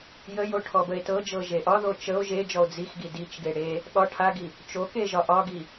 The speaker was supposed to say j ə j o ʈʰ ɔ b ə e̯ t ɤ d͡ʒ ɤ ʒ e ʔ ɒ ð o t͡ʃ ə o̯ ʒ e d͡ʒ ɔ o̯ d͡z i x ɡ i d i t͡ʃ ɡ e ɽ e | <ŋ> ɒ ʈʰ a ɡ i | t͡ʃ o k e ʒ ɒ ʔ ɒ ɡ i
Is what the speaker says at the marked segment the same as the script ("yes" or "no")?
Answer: no